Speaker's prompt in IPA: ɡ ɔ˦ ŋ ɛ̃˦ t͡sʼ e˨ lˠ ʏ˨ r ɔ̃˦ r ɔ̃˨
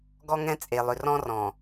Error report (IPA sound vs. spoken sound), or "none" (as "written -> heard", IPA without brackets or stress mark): none